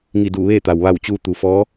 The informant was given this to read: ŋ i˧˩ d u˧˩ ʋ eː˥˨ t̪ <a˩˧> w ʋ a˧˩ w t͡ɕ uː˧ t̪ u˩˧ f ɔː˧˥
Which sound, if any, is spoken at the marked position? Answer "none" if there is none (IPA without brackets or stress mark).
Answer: a˩